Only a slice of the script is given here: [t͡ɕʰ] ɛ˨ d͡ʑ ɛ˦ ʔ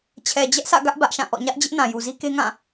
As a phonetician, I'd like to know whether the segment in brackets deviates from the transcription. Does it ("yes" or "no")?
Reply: no